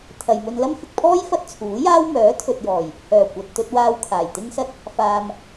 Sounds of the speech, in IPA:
t̪ʰ ɐ˨ j m ɵ˧ n l ɐ˥ m f ɪ˨ k̚ pʰ ɔː˥ j f ɐ˥ t̚ t͡sʰ uː˨˥ j aː˥ w m œː˨˥ t̪ʰ ɵ˨ t̚ j ɔː˨˩ j | h œː˨˩ kʷ ɐ˨ t̚ t̪ ɵ˧ t̚ w aː˧ w kʰ aː˨˩ j t̪ ɪ˥ ŋ s ɐ˥ t̚ | f aː˧ m

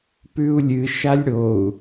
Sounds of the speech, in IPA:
p ʉ u̯ lʲ ɨ ʃ a lʲ ɽ o u̯

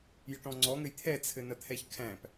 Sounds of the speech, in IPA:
j ə ʈ ɔ̃ ŋ͡ǀ ɔ ŋ ɘ j t̪ʰ ɛ t͡sʰ ɘ n ɐ t̪ʰ ɛ ç kʰ æ̃ p

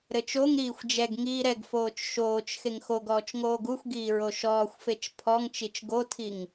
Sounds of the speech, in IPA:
ɾ ɘ t͡ʃ o ŋ ɾ iː xʷ d͡ʒ ɛ ɡ ŋ iː ɾ ɛ ɡ f oː t͡ʃ ʃ oː t͡ʃ x e ŋ x o ɡ ɔː t͡ʃ ŋ oː ɡ u xʷ ɡ iː ɹ o ʃ ɔː xʷ f e t͡ʃ pʰ ɔ ŋ t͡ʃ i t͡ʃ ɡ o tʰ i ŋ

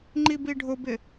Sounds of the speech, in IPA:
ŋ͡ǃ i b i ɖʱ ʊ b ɪ

